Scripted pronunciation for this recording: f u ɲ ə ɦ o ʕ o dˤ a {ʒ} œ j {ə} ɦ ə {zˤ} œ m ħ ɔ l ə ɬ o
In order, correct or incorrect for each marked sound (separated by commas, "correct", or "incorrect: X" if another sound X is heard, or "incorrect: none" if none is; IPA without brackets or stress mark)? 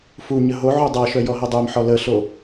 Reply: incorrect: ʃ, incorrect: ɔ, incorrect: dˤ